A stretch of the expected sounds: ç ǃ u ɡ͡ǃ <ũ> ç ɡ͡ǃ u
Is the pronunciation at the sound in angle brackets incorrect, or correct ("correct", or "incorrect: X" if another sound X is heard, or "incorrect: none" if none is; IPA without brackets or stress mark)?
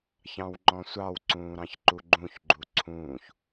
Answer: correct